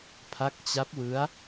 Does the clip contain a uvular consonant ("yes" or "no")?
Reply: no